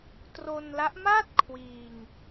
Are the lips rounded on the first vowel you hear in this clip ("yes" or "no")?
yes